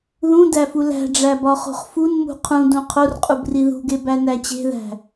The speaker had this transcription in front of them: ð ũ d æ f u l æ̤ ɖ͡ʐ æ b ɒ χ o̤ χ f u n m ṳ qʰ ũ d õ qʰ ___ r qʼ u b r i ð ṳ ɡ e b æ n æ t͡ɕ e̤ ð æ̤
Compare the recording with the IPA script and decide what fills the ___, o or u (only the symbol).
o